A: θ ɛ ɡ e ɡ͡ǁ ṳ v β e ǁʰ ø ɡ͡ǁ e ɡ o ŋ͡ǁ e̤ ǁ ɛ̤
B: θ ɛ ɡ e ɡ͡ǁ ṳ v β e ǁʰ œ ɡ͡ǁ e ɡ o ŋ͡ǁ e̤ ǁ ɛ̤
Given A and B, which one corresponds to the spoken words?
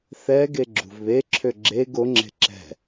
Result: A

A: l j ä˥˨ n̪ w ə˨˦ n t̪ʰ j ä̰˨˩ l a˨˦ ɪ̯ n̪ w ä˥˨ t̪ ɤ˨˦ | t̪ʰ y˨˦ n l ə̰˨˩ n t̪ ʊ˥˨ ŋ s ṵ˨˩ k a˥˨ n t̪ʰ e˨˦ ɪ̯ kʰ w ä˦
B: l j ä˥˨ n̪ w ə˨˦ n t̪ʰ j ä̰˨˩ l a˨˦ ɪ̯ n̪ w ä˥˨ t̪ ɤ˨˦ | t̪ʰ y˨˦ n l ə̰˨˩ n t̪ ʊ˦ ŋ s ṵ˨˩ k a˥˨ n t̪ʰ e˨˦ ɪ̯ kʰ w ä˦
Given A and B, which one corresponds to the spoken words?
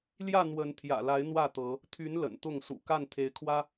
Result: A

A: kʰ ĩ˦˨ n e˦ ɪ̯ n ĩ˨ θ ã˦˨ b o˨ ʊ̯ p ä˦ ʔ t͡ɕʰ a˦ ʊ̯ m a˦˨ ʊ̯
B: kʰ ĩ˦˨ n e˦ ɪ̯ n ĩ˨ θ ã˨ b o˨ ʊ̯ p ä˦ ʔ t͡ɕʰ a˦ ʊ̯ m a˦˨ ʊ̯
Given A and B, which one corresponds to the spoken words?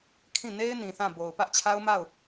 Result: A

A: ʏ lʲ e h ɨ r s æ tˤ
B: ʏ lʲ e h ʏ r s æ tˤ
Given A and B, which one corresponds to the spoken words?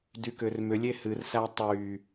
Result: A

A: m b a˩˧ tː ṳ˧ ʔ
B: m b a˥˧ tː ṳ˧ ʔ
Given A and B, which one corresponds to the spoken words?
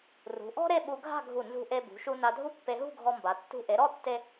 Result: A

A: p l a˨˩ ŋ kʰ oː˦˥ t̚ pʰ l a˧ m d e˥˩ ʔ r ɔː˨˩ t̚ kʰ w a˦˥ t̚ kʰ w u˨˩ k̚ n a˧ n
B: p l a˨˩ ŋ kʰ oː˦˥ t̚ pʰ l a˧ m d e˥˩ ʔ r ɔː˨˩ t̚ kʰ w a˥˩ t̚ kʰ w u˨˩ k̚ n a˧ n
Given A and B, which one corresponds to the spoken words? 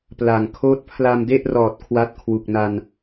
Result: A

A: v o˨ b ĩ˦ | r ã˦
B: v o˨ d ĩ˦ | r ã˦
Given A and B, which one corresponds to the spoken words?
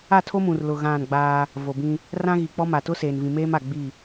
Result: A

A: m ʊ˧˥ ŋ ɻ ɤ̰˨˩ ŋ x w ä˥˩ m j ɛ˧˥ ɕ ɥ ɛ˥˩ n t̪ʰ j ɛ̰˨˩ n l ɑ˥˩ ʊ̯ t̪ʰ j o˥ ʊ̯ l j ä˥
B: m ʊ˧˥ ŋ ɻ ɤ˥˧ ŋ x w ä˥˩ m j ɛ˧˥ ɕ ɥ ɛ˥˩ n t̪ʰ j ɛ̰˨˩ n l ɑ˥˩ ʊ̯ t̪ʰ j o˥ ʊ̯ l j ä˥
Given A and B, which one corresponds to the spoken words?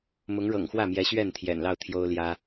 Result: A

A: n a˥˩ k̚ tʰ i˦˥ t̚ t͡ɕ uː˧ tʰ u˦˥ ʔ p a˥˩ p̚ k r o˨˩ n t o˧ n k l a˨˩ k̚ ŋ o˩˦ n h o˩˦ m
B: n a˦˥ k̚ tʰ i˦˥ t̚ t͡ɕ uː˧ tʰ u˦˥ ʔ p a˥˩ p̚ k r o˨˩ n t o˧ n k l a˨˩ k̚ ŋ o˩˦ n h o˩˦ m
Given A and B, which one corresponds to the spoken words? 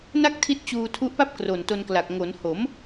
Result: A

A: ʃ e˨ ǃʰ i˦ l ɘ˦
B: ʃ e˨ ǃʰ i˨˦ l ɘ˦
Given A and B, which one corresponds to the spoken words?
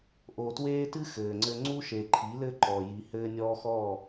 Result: B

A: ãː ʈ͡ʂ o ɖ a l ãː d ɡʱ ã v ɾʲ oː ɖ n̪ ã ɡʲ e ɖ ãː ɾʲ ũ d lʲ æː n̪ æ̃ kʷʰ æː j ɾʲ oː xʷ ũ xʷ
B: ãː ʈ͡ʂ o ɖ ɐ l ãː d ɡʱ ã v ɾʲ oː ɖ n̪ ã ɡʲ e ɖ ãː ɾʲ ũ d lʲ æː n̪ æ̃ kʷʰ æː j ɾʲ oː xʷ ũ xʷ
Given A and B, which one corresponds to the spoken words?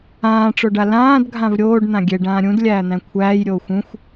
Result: A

